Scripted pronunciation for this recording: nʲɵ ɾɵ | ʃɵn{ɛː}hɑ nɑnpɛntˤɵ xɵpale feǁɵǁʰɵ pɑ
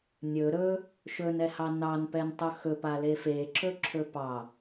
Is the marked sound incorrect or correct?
incorrect